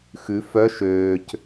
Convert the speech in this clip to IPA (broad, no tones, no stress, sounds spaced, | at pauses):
x ʉ f œ ʃ øː c